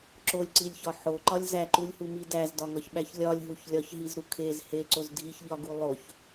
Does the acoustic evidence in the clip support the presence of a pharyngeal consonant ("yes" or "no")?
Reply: yes